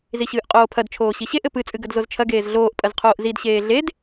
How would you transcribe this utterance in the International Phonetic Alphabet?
z i ɕ ɨː ʔ qʼ oː pʰ ɐ d t͡ʃʰ oː ɕ i ɕ e ʔ ɘ p ɨ t͡sʼ ɨ ɡ ɐ d z o z t͡ʃʰ ɐ ɡ eː z ɮ oː ʔ pʼ ɐ z qʰ oː ʔ z i d ɕ eː ɮ e d

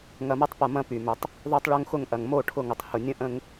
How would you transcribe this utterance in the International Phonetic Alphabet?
ŋ ɐ˨ m ɐ˦ tˤ p ɐ˨ m ɐ̃˦ p y˨ m ʏ˨ tˤ | ðˤ o˦ tˤ ɭ o˦ ŋ x ʊ˦˨ ŋ ʔ ɐ˨ ŋ m o˦˨ ʈʰ ʊ˦˨ ŋ ʊ˨ tˤ h ʊ˨ nʲ ə̃˦ ʔ ə̃˦ ŋ

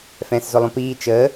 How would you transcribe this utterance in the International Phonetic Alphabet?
f ɛ̃ː s z ʊ lˠ õ p iː t͡ʃ əː

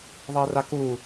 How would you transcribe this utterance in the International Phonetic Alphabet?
ðˤ əː r a k u

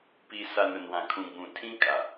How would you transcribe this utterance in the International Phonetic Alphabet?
p i˨ s a˨ n ʊ˨ n w ã˨ kʰ ũ˨ ɡ͡b ũ˨ tʰ ĩ˦ kʼ a˨

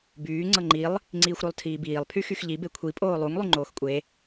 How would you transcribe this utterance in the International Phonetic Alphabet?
b yː ŋ͡ǀ ɤ ŋ͡ǃ i lˠ | ŋ͡ǀ iː xʷ ɾ o lˠ tʰ iː b iː lˠ pʰ y x y x ʎ i b e kʷʰ i pʼ oː lˠ u ŋ lˠ y ŋ͡ǃ oː x kʷʼ e

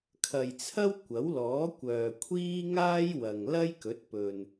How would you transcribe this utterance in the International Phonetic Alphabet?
kʰ ɐ˨ j t͡sʰ ɐ˥ w kʷ ɐ˨˥ w l ɔː˨˥ kʷ œː˨ kʷʰ iː˥ ŋ aː˥ j w ɐ˨ ŋ l ɐ˥ j k ɵ˨˥ t̚ p ɵ˨ n

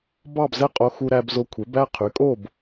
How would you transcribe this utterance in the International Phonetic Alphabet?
b ɑ˥˨ b z ɛ˥˨ qʼ o˧ x u˧ ɾ æ˧ b z o˧ kʷʰ e˩˥ b æ˥˨ qʰ y˩˥ kʼ o˥˨ b

